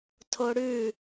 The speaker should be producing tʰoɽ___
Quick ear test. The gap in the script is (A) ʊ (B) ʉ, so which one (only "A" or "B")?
B